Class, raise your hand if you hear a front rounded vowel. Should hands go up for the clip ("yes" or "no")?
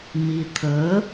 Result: no